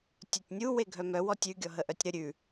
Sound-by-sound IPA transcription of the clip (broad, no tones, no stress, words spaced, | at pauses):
tʲœtʲnʲu weɡʱœmœw ɔtʲʉ ɡʲɔɦəʔœtʲɾə ɾʲʉ